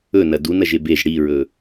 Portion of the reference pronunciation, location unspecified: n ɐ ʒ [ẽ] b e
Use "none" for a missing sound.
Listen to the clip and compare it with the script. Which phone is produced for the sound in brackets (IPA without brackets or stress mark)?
e